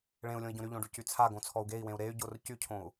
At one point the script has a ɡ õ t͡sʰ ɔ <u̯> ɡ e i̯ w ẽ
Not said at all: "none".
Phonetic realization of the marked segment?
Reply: u̯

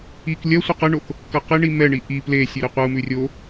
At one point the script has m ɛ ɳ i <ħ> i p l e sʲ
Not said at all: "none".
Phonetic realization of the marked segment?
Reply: ʔ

